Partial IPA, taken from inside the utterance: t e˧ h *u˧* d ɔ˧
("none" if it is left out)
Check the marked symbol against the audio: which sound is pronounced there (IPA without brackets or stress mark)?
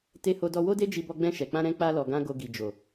o˧